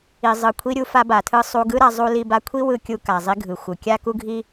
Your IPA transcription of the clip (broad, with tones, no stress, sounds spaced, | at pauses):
i˩ zˤ ɯ˩ kʷʰ i˧ ɾʲ u˧ f a˧ b a˩ tʰ ɯ˧ sˤ u˧ ɡ ɯ˥ ɾ a˧ zˤ u˧ l i˧ b a˧ kʷʰ i˥ w ɯ˧ kʲ u˧ k a˩ zˤ i˧ ɡʱ ɯ˩ xʷ ɯ˩ kʲ a˥ k u˥ ɡʱ i˥